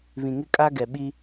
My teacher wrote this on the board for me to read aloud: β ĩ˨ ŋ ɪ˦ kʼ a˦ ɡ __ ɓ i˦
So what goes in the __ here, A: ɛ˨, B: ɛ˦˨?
A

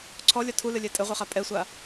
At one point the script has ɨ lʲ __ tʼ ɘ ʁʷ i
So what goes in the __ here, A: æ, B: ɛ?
B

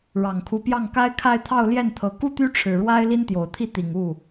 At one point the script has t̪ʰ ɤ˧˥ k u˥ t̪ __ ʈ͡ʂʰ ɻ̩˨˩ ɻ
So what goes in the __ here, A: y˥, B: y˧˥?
A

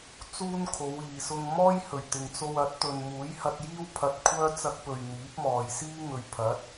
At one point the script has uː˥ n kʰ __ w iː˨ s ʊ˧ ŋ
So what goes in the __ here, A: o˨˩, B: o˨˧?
B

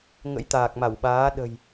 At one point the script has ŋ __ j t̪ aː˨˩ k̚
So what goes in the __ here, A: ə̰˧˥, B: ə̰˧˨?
A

